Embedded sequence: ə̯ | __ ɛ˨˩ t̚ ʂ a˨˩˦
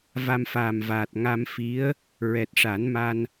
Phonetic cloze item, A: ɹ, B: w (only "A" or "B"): A